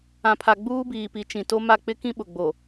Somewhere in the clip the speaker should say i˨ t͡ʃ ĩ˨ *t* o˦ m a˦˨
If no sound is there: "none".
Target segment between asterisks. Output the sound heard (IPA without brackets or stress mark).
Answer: t